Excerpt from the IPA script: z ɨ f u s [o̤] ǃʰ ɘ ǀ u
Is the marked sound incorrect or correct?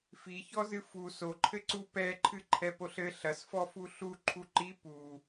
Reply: incorrect